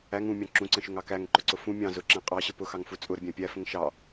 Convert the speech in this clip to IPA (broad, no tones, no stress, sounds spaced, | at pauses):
æ ŋ ũ mʲ ɑ̃ ǁ ũ ǀ ə̃ ʃ ʊ ŋ ɑ k æ ŋ ǃ ʊ ǀ ʊ f ũ mʲ ɑ̃ z ʊ ǁ æ̃ qʼ ɑ ɕ ə p ʊ x ɑ ŋ f u t͡sʼ ʊ ɾ ə bʲ æ̃ pʲ æ f ə̃ ŋ ʃ ɑ